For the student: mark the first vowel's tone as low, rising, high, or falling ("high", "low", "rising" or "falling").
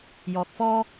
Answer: low